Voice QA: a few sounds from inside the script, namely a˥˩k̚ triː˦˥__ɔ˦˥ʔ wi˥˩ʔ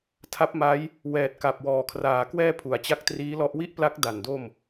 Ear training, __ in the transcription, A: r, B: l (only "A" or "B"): B